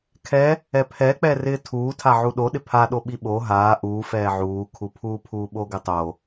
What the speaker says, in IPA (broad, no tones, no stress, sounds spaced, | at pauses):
kʰ ɛ | ɛ pʰ ɛ k͡p ɛ r ɪː tʰ uː tʰ a ʕ u ɗ o ɗ ɪ pʰ a ɗ o ɓ i ɓ o ɦ aː ʔ uː f ɛː ʕ uː kʰ u pʰ uː pʰ uː ɓ o ɡ ɪ tˤ o